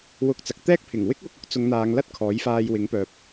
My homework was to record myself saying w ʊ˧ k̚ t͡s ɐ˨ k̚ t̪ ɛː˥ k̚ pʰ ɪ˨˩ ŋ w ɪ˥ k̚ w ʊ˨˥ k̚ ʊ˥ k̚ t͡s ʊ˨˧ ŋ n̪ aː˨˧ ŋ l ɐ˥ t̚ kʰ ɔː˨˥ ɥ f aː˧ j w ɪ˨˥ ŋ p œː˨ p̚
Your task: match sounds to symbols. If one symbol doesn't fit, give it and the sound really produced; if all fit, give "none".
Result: ɥ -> j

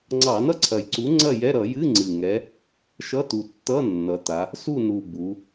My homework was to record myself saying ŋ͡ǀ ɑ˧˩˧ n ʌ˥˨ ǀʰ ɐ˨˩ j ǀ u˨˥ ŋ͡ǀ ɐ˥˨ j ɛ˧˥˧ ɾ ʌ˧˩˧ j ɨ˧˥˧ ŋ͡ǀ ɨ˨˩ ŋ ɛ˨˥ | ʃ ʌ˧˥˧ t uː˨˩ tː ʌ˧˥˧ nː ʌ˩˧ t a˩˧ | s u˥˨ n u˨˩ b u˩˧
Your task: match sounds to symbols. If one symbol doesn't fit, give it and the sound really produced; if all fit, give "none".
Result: uː˨˩ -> u˨˩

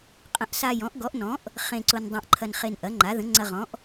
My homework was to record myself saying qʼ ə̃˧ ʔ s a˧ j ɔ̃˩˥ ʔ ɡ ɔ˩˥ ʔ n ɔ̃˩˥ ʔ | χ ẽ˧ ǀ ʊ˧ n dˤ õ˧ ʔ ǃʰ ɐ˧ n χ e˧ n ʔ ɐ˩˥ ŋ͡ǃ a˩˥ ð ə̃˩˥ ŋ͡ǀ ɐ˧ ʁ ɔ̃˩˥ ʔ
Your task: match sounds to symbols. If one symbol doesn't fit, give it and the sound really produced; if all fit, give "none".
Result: none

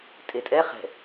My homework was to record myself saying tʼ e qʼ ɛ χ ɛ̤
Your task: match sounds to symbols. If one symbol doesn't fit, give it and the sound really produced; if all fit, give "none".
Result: qʼ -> tʼ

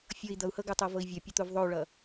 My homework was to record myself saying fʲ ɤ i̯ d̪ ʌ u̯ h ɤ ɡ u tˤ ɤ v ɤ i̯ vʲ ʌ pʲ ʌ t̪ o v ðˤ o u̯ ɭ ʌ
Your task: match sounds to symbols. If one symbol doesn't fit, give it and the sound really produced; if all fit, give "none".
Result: none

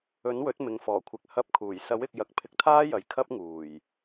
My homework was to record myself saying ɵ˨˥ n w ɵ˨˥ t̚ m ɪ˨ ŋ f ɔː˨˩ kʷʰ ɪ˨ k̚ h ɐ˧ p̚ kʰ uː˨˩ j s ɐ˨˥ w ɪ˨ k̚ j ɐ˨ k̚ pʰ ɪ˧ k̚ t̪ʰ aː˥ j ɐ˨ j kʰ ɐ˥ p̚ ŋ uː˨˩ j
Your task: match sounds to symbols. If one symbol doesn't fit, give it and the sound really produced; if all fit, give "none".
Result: none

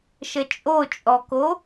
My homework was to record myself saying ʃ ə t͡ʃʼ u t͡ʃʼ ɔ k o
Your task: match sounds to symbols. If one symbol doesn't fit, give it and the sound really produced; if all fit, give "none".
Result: u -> o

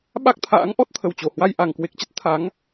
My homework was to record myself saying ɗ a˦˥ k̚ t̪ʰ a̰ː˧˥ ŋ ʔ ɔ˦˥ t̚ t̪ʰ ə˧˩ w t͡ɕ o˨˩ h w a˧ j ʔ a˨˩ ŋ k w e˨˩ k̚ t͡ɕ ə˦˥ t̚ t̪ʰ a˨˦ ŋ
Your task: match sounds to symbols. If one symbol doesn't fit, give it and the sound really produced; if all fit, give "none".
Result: ɗ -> ɓ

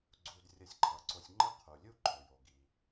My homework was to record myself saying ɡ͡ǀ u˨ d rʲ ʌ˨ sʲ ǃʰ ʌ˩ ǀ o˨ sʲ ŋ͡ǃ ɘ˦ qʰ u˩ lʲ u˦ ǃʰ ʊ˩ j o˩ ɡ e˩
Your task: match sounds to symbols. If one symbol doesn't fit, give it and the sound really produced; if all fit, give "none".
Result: e˩ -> i˩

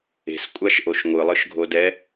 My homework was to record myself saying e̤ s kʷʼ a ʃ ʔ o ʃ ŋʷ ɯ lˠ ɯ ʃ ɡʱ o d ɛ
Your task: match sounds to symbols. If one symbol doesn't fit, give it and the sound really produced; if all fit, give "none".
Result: none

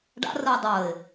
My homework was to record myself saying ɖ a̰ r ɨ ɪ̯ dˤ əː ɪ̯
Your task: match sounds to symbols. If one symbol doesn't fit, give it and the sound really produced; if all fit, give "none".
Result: none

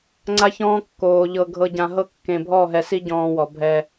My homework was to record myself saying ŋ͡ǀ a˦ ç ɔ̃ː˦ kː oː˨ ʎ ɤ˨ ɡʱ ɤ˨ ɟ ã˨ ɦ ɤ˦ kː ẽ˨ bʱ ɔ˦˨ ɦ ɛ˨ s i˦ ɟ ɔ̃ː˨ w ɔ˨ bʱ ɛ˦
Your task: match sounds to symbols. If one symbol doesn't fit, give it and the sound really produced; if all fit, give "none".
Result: none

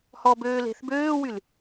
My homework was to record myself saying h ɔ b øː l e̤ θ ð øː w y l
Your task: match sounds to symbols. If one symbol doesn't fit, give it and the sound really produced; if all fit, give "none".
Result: ð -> b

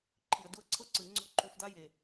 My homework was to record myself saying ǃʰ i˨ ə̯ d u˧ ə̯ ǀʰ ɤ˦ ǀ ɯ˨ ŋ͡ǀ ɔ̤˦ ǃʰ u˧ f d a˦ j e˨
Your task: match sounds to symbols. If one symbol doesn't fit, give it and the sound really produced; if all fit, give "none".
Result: none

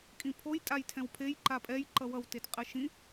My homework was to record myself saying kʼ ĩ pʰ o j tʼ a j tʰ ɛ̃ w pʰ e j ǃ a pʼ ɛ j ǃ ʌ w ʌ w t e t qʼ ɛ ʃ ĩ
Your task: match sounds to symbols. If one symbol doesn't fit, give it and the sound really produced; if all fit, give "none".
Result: none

